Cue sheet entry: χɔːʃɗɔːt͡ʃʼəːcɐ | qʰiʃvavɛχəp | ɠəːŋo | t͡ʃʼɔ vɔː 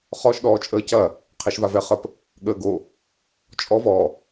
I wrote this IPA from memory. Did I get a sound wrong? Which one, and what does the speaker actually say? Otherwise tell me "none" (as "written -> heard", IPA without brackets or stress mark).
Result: ŋ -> ɡ